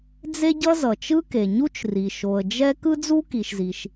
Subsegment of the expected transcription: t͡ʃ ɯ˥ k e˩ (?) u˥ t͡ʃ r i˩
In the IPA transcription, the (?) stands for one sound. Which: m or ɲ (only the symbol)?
ɲ